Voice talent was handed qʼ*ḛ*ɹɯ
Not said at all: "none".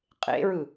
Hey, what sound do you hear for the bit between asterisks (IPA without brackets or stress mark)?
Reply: ḛ